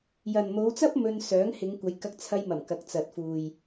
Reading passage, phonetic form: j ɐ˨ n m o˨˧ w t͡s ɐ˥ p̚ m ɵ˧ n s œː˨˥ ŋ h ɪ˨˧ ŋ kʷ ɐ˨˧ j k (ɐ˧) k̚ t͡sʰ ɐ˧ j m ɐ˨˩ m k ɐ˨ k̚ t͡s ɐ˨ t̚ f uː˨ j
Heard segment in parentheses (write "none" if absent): ɐ˧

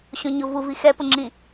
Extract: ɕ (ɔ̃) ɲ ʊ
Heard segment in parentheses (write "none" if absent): õ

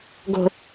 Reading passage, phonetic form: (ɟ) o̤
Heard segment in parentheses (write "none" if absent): ɡ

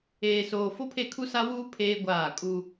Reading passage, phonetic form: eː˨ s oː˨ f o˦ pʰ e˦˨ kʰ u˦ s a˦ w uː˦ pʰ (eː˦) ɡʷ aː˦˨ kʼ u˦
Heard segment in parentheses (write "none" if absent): eː˦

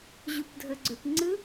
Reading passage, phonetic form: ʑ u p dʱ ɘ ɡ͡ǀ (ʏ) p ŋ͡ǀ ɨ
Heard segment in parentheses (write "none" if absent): ʏ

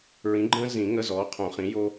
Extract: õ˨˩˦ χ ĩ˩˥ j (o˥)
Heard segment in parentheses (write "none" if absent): o˥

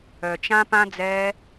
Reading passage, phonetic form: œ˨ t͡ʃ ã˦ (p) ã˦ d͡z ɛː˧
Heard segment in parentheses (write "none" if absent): p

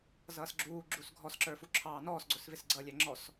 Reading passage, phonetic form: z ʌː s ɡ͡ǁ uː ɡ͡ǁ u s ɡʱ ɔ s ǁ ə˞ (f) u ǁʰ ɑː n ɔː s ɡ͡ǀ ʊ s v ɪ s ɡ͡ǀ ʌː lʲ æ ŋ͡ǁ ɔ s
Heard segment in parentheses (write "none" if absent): f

